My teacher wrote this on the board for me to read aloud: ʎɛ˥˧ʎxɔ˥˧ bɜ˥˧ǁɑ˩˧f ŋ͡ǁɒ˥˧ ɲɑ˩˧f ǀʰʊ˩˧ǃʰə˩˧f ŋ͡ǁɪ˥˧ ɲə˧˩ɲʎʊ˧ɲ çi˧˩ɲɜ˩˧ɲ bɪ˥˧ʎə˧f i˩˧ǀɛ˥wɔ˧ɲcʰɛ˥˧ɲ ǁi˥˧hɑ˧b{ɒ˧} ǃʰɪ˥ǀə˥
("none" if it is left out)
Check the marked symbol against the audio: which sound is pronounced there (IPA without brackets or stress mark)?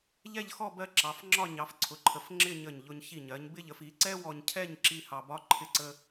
ɒ˥